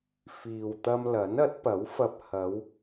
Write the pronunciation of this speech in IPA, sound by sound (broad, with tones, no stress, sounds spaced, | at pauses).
f iː˨ w t̪ ɐ˧ m l ɐ˨˥ n ɐ˨˥ t̚ p ɐ˨˥ w f ɐ˧ p̚ h ɐ˨˧ w